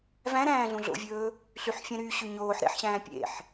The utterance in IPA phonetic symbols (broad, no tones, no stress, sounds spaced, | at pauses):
v æ̃ ɾ æ̃ː ɮ ũ ɮ o̰ vʲ ɵː | ɬ y ħ fʲ ɛ̃ ɾ yː ɕ ʉ ɲ oː ħ ɾ ḛ ħ ɕ æ̃ː pʲ ḛ ħ